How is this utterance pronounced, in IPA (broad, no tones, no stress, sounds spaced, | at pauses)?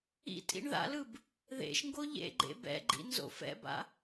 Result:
ḭ tʼ ḭ ɳ ð a̰ l ɯ b | ð ḛ ʃ ŋ ɡ o ʎ ḛ ɡ͡ǃ ḛ b ɛ̰ ɡ͡ǃ ḭ n z o̰ f ɛ̰ b a̰